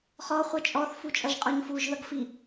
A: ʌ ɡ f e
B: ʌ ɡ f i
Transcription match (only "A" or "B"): B